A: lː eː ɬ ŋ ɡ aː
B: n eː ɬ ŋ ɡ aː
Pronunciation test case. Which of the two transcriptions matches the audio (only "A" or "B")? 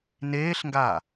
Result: B